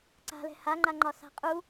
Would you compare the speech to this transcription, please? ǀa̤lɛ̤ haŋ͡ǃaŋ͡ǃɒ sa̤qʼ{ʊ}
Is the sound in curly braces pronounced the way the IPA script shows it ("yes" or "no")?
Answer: no